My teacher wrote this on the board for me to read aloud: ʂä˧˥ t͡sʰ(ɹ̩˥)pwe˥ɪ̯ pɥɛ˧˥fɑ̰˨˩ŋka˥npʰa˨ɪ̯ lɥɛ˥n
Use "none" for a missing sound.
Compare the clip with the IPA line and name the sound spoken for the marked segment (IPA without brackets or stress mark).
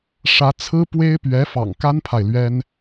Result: ɹ̩˥